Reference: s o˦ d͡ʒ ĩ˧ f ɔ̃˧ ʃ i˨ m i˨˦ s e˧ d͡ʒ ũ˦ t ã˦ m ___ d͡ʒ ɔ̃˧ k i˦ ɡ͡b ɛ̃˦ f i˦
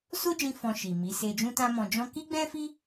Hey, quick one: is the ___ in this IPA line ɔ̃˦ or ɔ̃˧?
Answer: ɔ̃˧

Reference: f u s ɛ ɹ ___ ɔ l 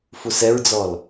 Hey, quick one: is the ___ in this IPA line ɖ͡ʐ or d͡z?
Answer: d͡z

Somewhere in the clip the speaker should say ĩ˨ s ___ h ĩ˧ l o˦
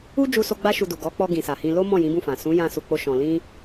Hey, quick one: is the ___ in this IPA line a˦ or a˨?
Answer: a˨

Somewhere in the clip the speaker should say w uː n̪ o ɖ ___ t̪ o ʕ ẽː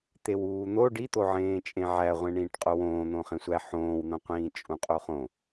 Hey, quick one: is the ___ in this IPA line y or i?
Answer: i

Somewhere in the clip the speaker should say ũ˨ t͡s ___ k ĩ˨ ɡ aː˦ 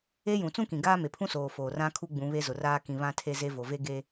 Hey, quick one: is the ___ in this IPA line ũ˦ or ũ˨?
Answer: ũ˦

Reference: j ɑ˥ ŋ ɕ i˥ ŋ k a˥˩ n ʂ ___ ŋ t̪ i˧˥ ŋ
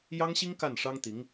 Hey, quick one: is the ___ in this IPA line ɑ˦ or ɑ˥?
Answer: ɑ˥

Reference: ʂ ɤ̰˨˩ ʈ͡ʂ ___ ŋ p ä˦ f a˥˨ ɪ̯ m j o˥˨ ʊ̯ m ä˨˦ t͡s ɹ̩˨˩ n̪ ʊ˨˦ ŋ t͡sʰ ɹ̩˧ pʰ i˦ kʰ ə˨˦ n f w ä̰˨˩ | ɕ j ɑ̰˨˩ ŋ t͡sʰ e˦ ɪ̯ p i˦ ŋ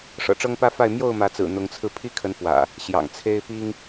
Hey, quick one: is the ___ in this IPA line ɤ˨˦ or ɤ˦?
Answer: ɤ˦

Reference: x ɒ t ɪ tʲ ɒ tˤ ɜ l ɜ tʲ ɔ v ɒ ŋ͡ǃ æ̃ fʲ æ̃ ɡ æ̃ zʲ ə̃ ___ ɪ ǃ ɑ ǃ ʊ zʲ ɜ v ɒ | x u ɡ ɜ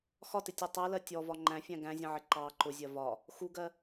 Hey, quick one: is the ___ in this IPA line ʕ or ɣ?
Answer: ʕ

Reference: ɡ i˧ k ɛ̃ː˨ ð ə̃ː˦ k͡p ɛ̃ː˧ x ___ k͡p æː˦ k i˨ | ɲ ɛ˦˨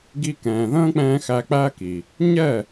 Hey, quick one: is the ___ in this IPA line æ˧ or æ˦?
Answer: æ˧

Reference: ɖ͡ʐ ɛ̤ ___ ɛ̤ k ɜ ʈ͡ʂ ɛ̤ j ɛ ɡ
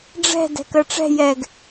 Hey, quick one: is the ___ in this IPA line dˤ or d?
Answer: d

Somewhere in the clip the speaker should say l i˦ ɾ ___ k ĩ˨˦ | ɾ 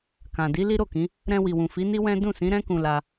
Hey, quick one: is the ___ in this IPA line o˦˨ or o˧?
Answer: o˦˨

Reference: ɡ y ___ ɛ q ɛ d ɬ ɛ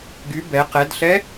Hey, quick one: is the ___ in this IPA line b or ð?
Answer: b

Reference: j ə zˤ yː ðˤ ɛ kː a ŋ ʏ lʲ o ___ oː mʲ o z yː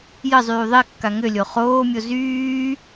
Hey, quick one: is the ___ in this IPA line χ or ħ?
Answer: χ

